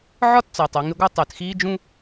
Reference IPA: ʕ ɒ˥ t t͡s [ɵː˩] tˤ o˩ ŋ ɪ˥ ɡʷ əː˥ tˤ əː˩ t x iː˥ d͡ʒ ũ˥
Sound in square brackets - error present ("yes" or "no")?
yes